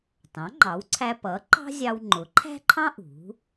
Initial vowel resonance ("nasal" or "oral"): nasal